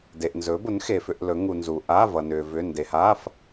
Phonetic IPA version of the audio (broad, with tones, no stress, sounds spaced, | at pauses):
d e˨ ʔ n z ɵ˨˦ b ʊ˨˦ n x e˨ f ʏ˧˥˧ ʔ l ɵ˨˦ ŋ u˨ n z u˨ ʔ a˧˥˧ v ʌ˨ n ʏː˨ v ʏ˧˥˧ n d e˨ h aː˧˥˧ f